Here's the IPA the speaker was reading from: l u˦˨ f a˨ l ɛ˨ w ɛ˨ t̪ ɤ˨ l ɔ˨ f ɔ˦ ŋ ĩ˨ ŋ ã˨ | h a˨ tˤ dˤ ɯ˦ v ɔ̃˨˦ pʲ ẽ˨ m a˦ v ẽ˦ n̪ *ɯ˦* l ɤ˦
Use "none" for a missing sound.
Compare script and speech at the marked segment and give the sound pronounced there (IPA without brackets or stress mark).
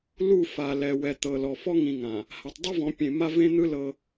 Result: ɯ˦